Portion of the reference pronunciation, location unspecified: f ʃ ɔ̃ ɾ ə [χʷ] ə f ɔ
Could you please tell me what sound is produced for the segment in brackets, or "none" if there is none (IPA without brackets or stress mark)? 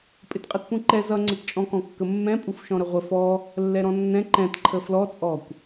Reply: ʁʷ